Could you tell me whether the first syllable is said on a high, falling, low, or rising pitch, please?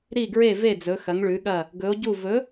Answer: falling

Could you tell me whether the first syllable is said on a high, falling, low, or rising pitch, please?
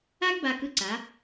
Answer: high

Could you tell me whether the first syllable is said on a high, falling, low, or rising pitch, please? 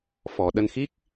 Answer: low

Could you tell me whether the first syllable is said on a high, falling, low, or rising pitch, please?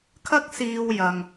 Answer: high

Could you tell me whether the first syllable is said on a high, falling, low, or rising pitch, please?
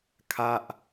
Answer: falling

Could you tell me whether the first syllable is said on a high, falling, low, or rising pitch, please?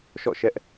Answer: falling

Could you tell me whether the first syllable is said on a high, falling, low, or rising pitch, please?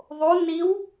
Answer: rising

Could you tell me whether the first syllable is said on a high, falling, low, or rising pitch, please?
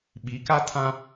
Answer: rising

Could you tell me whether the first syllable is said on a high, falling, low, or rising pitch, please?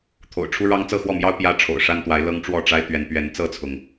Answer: low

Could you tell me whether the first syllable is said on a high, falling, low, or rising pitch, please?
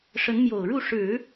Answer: rising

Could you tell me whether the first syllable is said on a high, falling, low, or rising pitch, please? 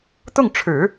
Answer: falling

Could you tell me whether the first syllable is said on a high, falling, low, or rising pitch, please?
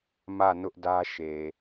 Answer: falling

